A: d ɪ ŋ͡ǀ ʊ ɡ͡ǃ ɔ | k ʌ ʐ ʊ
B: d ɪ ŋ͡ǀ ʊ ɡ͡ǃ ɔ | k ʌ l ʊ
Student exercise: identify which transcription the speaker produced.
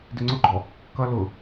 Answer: B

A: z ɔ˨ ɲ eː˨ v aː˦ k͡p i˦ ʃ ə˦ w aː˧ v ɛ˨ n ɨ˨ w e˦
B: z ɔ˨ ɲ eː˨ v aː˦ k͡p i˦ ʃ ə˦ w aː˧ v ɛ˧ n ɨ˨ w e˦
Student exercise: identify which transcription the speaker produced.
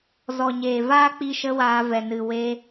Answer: A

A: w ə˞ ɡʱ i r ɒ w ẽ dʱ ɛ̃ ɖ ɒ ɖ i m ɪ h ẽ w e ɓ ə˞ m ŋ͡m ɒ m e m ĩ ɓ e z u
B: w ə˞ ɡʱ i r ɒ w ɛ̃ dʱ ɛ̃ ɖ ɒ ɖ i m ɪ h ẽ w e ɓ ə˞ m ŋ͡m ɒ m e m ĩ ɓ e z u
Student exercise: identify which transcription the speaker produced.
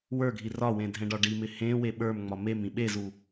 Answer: A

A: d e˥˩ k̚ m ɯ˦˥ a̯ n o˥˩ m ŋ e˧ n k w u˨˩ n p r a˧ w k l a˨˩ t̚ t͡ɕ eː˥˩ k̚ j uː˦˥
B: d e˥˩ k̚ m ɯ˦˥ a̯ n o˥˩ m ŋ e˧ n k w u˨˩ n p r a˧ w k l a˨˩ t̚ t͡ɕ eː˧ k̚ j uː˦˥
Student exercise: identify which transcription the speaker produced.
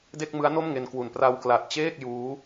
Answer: A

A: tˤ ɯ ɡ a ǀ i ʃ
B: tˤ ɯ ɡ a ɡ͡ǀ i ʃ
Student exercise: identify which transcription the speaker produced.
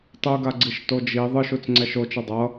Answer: B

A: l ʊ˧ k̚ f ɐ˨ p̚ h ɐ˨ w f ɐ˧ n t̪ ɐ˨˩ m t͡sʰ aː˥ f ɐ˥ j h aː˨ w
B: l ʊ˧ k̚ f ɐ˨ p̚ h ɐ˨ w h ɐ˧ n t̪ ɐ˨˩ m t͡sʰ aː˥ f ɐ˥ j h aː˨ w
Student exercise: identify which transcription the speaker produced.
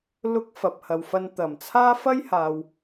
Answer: A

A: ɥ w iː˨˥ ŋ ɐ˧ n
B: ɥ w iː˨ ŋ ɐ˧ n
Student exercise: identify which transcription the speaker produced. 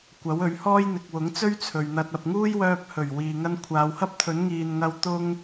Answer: B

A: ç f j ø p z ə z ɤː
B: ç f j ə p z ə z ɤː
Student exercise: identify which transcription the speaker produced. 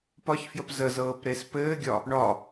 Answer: B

